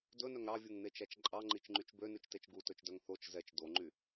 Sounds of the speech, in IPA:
d ɵ n œ ŋ ɾ ɑ vʲ u ŋ n e t͡ʃ æ t͡ʃ ǃʼ ɑ ŋ͡ǃ i t͡ʃ ŋ͡ǃ y t͡ʃ b ø n ʉ t͡ʃ t e t͡ʃ ɡ u t ɵ t͡ʃ d œ ŋ θ o t͡ʃ z ɛ t͡ʃ d o ŋ͡ǃ y

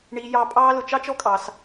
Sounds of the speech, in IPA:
ɳ iː˧ j ɑ˧ pʼ ɑː˦ l ʊ˧ t͡ʃ ɑ˦ t͡ʃ ɔ˦ kʼ ɑ˧ s

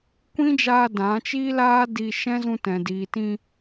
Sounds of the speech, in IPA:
kʷ ĩ˦ d͡ʒ aː˧ d ã˨˦ t͡ʃ iː˦ l aː˦ d i˧ ʃ ɛ̃˦ z ũ˧ t ɛ̃˨ d iː˨ t ĩ˧

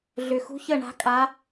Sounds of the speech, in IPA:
ɮ ʏ˨˩ x ṳ˧˥ ç ə˦˨ ɳ a̤˧˥ kʼ a˧˥

